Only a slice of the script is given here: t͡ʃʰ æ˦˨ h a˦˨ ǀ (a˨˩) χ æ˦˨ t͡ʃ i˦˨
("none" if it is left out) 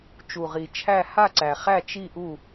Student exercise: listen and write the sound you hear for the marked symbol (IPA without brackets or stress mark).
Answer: æ˨˩